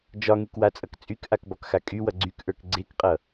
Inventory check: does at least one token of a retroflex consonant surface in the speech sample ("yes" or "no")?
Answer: no